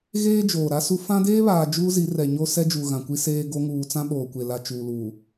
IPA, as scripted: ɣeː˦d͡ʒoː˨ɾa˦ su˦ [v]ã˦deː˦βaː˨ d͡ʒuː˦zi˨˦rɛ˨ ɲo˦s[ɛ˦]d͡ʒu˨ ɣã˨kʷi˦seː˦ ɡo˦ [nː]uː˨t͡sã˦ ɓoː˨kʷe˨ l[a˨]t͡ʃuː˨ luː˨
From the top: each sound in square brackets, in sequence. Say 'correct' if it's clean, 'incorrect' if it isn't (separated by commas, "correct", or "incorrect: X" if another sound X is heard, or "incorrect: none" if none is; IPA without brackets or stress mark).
incorrect: f, correct, incorrect: ŋ, correct